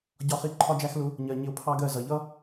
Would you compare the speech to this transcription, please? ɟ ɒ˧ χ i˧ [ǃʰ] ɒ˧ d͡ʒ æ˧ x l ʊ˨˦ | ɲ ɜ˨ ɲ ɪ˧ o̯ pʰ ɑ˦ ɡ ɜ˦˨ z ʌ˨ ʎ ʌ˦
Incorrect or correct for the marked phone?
correct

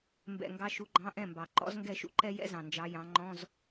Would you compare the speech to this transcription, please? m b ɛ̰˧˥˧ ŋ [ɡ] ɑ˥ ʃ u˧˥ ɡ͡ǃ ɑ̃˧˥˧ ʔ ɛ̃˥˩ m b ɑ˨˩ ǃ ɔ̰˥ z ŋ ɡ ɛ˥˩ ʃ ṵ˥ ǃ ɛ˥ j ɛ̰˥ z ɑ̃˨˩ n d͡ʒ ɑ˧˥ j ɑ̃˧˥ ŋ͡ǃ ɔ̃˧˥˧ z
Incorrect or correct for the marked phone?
correct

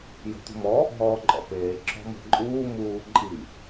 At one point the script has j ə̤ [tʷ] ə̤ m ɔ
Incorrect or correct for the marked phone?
correct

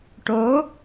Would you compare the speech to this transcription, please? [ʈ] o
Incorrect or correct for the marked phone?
correct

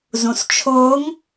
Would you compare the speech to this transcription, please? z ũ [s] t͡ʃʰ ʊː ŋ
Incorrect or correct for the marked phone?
correct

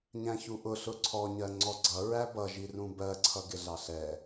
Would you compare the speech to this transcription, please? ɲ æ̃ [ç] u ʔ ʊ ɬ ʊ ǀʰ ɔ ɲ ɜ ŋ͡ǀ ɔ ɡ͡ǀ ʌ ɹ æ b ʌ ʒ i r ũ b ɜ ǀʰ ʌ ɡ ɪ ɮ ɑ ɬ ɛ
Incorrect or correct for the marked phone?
correct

